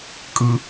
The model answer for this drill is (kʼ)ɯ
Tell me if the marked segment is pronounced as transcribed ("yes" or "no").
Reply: yes